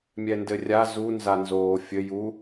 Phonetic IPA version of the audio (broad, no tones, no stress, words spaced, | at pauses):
mʲɛndɘrʲa zu nzanzoːfʲɘ ju